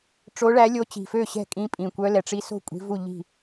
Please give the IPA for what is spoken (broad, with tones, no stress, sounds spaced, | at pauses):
ʈ͡ʂ o˧˥ ɭ æ˧˥ lʲ o˧˥ t͡ɕ i̤˨˩ f ø˥˩ ɕ ɛ̤˥˩ kʼ ĩ˧˥ pʼ ĩ˨˩ kʷ œ˧˥ l ɛ˨˩ ʈ͡ʂ i˧˥ s o̤˥˩ kʷʼ i̤˧˥ v u˥˩ ʎ i̤˥˩